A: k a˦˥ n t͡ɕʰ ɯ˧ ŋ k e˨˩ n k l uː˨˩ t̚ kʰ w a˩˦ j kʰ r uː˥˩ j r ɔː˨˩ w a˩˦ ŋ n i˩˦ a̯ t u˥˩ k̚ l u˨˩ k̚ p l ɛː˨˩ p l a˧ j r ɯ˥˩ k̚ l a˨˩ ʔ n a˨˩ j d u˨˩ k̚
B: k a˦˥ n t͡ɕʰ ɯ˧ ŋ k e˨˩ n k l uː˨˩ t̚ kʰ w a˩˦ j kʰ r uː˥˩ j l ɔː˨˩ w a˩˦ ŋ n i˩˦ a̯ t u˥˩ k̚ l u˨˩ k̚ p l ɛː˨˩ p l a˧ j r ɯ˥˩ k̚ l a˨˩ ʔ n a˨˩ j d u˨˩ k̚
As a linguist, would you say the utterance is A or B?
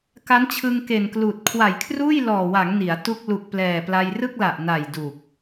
B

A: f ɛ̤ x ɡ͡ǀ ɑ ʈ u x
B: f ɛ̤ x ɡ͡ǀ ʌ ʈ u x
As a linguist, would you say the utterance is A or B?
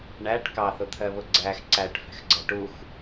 B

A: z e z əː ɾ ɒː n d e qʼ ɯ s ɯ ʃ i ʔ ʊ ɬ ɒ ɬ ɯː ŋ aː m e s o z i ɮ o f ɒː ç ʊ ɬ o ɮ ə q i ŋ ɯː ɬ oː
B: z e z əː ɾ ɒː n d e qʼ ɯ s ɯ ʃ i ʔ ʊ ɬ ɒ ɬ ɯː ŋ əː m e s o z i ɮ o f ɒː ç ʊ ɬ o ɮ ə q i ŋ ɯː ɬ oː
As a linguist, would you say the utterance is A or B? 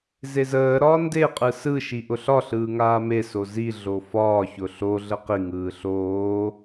A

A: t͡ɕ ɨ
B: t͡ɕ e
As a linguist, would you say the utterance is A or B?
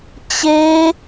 B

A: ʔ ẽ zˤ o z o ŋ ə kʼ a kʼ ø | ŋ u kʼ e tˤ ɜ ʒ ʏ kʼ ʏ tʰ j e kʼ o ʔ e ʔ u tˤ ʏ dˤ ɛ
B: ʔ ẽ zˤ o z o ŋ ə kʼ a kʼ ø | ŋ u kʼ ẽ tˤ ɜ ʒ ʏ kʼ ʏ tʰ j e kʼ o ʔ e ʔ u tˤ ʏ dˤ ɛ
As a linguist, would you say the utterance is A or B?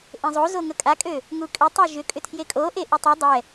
A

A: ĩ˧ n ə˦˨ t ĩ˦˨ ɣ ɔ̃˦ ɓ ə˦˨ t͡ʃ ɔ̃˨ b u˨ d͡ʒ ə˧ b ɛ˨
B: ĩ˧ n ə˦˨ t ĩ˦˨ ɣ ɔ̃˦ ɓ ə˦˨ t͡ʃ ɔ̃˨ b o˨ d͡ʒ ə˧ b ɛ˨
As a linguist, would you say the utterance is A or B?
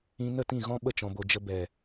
B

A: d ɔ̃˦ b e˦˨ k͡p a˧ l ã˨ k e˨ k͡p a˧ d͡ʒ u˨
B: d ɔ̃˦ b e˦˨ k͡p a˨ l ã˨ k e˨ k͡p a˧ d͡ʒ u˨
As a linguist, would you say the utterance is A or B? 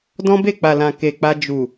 B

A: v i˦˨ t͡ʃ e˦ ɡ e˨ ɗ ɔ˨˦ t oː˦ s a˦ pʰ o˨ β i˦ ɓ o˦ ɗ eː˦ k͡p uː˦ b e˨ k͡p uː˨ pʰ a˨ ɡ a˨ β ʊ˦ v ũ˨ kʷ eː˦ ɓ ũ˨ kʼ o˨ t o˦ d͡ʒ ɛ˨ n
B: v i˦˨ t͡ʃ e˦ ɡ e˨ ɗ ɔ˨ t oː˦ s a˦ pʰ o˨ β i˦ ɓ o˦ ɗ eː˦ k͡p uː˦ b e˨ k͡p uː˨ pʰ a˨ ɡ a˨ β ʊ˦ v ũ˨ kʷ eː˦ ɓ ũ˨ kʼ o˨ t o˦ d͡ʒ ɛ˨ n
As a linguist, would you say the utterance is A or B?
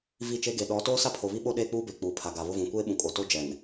A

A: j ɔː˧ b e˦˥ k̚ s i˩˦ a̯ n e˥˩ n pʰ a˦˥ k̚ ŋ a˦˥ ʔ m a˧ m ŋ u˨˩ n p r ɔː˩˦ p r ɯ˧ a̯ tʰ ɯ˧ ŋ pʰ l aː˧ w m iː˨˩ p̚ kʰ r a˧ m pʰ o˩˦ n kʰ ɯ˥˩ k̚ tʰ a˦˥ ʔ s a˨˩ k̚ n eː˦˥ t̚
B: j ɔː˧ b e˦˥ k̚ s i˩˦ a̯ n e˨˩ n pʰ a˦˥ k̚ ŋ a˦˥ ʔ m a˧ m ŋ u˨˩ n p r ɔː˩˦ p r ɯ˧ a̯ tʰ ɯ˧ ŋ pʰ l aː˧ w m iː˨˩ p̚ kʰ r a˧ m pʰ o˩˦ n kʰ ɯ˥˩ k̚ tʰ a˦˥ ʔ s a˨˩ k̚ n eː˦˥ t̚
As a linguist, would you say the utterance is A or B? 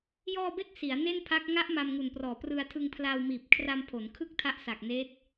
A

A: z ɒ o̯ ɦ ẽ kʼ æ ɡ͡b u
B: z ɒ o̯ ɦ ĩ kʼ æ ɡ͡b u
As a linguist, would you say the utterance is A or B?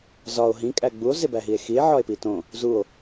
B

